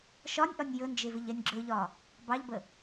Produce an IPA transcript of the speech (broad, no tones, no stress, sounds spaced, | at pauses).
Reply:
ʃ ɒ nʲ ʔ ɒ nʲ j ɵ n d͡ʒ e v ɪ ʎ ɛ nʲ ɡ͡ǁ ɵ ʎ ɒ | b ɑ ʎ b ə